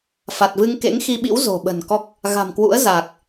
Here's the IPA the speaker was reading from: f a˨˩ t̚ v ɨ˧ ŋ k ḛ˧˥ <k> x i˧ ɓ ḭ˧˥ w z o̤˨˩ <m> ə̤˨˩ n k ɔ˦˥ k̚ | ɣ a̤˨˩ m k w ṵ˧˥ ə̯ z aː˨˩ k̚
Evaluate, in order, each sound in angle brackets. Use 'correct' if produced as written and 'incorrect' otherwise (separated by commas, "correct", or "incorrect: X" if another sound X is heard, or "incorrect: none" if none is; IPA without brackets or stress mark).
incorrect: ŋ, incorrect: ɓ